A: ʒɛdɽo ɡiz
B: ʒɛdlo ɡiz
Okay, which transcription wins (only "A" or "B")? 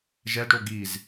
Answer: A